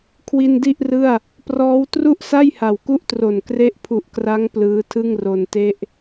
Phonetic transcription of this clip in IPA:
kʰwi˧ndi˥˩ʔrɯ˥˩a̯ | prɔː˦˥w tru˥˩ʔsa˥˩j ha˨˩wku˥˩ʔtro˨˩n kre˦˥ʔpʰu˨˩ʔkra˦˥ŋ plɯː˦˥tʰɯ˥˩ŋro˧nte˥˩ʔ

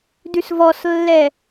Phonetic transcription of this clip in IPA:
dʉsvɔslːɛ

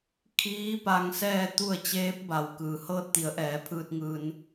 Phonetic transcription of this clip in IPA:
kʰiː˧˥ pa˧ŋsɛː˥˨t̪u˥˨ə̯ t͡ɕeː˧˥p̚ba˩w kɯː˩hɤː˧t̚t̪i˩˧ə̯ʔɛː˩˧ pʰɯː˧t̚ŋɯː˧n

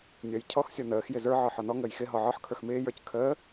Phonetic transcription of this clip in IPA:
nʲʌjcʰɔx sʲɔnəːx jɪzə˞ ʕɔħɔnɔ ŋəːjxɪ ɦɔʕɔħ kʰə˞xmɪː jə˞c kʰəː

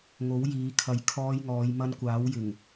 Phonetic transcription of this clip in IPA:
ŋo˨˥wjiː˨˧kʰɐ˨j kʰɔː˧jŋɔː˨˧jmɐ˧n kʷaː˨˥wjɪ˨˩ŋ

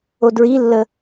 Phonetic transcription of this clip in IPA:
odɹilːə

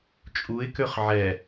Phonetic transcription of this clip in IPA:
t͡ʃʼuɪ̯ køχʕɛ

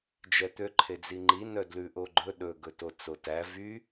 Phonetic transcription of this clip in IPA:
d͡ʒɛt̪ø ǃʰed͡ziŋ͡ǃi nœdlʉ ʔoɡ͡ǃɵ ɗɵ ɡɵtot͡sotæ vy

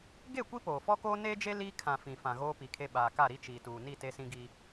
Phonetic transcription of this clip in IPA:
ɡe˦˨ kʷi˦poː˨fɔ˦koː˦ neː˦d͡ʒe˦ liː˦ kʰã˨ fĩ˨fã˨ ɣoː˦pi˨kʰe˦ ɓaː˨ka˦˨ɾi˦t͡ʃiː˨ tuː˨ni˦˨ te˦sĩ˦ɡiː˦

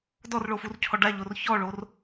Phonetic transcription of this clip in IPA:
dɔrɭofurcʰɔ ɖaʎor çɔɭor

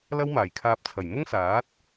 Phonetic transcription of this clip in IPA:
lɐ˥wmaː˨˩jkʰaː˧p̚t͡sʰɐ˨˩j mʊ˥ŋsaː˨˥t̚

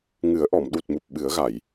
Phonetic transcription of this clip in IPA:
ŋɨ˨˩˦ə̯ʔɔ˨˩˨m ɗu˨˩t̚mu˨˩p̚ ɓɨ˨˩˦ə̯ɣa˨˩˨j

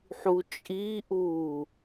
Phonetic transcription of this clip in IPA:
ħut͡ʃʼiʔuː

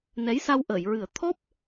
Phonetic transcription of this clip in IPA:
nɛ˧˥jsa˧w ʔəː˨˩˨jɹɨ˨˩˦ə̯ t̪ʰɔ˦˥p̚

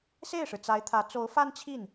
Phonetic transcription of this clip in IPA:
se˥˩ɪ̯ʂɻ̩˩ t͡sa˧˥ɪ̯t̪ʰä˧˥ t͡so˧˥ʊ̯fa˥nt͡ɕʰi˥˩n

